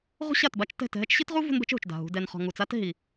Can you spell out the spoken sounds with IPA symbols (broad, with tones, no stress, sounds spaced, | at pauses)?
ʁ ṳ˦ ɕ a˦˨ t b a˦ t͡ʃ t ɛ̤˦˨ t ɦ ɛ˦ t͡ʃ ɕ i˦ t ʁ u˦ v ṳ˦ n b ɛ̤˦ t͡ʃ ɦ ṳ˨ t͡ʃ d a̤˨ ɦ ṳ˧ d ɛ˧ n χ ɔ̤˧ ŋ u˨ t͡s a˦ t ɦ i˨